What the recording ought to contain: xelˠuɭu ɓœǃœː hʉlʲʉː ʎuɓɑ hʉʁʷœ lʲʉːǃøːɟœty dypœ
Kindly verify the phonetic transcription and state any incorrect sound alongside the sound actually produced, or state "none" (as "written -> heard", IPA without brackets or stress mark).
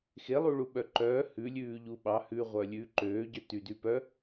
none